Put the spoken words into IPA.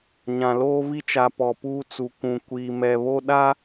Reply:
ɲ ã˨ l oː˦ v i˦ t͡ʃ a˨ p ɔ˨ p uː˦ t͡s u˨ kʷ ũ˨ kʷ iː˨ m ɛ˨ β o˦ ɗ a˦

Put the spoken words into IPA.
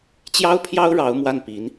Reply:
t͡ɕ j ɑ˥ ʊ̯ pʰ j ɑ˥ ʊ̯ ɻ ɑ˧˥ ʊ̯ m w a˥˩ n p i˧˥ n

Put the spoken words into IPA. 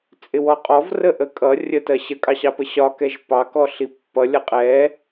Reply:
t͡sʼ ɪ w ɔ qʼ ɔ v r ə ʔ ə kʼ ʌ rʲ ə t ɜ ɕ ə kʼ ɑ ɕ ɑ p ə ɕ ɒ k ɛ ʒ p ɑ k ɔ ɬ i pː ʌ lʲ ʌ qʼ ɛ

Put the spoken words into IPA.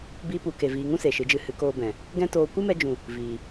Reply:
b iː˧ p u˨ k e˨ v iː˨ ŋ ũ˦ s e˨ ʃ ɨ˨˦ d͡ʒ ɨ˧ h ɨ˨˦ k oː˧ b ɛ̃˨ | ɡ ɛ̃˦ t oː˧ kʷ ɨ˦ m ɛ˧ d͡ʒ ũ˨ | v iː˨

